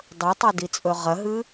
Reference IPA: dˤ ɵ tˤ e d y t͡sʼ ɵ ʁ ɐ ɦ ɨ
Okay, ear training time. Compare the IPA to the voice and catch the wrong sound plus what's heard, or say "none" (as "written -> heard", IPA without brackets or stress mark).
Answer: y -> i